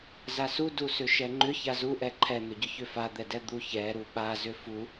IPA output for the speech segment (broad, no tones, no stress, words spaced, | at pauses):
zasu dusʏʃɛŋ͡ǃʏ çazuʔɛ ǃʰɛn̪ʏɟʏ çʏfad̪ɛdɛ d̪uçɛɾu ɓazʏ fu